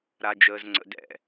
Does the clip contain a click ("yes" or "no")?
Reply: yes